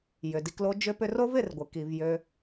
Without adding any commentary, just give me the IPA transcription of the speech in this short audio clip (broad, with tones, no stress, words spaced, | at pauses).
jʏ˨di˧klo˦ d͡ʒʏ˦pʏ˦r o˦v ɪ˦˨rɡʷɪ˨ ki˨vjø˧